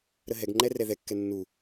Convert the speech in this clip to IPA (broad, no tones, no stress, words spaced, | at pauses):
ɾəɦɛɡŋ͡ǃɛ rɛðɛkːɛ nːu